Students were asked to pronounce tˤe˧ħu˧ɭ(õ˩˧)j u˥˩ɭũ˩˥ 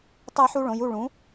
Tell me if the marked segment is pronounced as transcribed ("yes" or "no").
yes